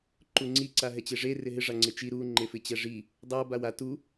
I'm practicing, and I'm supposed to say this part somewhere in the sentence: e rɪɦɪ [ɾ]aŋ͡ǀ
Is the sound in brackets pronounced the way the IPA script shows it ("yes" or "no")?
no